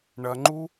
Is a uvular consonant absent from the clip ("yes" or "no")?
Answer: yes